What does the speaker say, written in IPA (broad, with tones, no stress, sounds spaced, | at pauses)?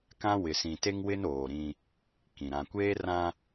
k ã˦ w ɪ˨ s ĩ˨ t e˦ ŋ w ɪ˦ n oː˨ ɾ ĩ˦ | k ĩ˨ ɾ ã˨ kʷ eː˦ r ã˦